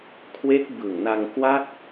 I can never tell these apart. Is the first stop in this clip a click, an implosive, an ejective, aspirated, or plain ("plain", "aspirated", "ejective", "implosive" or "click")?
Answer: aspirated